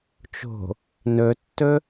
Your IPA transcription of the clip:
t͡ʃo̤ | nɵtːɵ

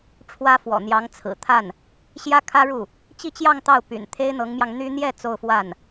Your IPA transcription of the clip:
ʈ͡ʂʰwä˥fwɔ̰˨˩n̪jɑ˧˥ŋ t͡sʰɹ̩˨˩ t̪ʰa˥˩n | ɕjä˥ kʰä˥ɻu˥˩ | t͡ɕi˥˧t͡ɕjɑ˥˧ŋ t̪ɑ˥˩ʊ̯ py̰˨˩n t̪ʰe˥ɪ̯n̪ɤ˧˥ŋmjɑ˧ŋ n̪y˥ n̪jɛ˥˧ t͡so˥˧ʊ̯fwa˥˩n

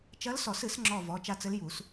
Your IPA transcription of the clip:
t͡ʃɐ˧˥lsɔ˨˩˦sɨ˨˩˦s ŋ͡ǁɔ˦˨ vɔ˩˧˩t͡ʃa˦˨t͡sɘ˧˥lju˨˩˦s

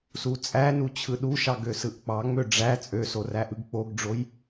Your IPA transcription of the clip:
sut͡sʼænu t͡ɕʰɯɗuʃɑ ɡøsɯʔk͡pɑŋ͡mø ɖ͡ʐæ t͡sʼøso ræʔɯɡk͡poɡɖ͡ʐoj

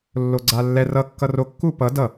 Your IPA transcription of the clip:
lːoɡ͡ǀalːɛ rʌ kːʌro kːupʌ dʌ

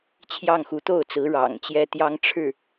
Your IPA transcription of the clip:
t͡ɕʰjɑ˥˩ŋxu˧˥ t̪o˥˩ʊ̯t͡sɹ̩˧˥ ɻɑ̰˨˩ŋt͡ɕjɛ˥ t̪jɑ˥ŋʈ͡ʂʰɻ̩˥˩

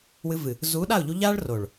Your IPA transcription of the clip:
wɨ˧vɨ˨ | zuː˨˦ɗa˦˨ʊ̯ʎu˧ʎaː˦ɭ ro˨ɭ

